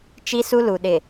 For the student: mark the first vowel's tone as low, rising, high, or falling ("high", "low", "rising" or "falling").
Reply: high